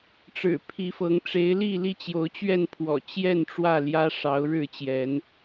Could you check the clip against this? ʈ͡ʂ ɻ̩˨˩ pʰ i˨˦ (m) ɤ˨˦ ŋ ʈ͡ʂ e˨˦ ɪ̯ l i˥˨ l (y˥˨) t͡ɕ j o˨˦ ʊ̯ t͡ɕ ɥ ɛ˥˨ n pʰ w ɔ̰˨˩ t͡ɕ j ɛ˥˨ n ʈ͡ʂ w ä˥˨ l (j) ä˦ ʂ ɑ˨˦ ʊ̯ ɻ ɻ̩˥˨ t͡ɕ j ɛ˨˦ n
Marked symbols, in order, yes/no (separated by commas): no, no, yes